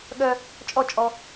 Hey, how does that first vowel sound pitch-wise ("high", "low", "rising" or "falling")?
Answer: high